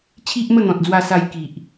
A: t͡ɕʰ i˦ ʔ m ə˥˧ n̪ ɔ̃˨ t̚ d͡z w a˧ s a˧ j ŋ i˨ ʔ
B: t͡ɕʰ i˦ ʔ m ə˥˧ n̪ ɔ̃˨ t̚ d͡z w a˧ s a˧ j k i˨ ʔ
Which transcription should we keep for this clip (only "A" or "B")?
B